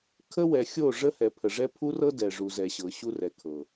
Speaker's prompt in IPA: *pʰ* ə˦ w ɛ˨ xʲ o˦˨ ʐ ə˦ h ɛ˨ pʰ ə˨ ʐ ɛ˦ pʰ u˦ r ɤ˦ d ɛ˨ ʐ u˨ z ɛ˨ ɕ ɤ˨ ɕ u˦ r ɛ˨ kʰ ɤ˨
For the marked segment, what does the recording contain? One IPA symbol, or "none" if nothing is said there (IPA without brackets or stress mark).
kʰ